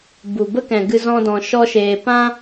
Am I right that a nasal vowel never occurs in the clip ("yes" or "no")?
no